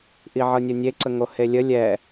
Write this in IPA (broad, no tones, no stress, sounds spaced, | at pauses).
ʔ i ʕ ɤ nʲ o nʲ e ǀ ə ŋ o h e lʲ ə lʲ ɛ